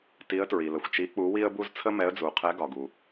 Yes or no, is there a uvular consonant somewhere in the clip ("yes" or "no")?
yes